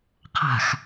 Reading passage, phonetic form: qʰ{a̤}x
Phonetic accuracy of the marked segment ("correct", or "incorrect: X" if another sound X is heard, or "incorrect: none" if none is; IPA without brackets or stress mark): correct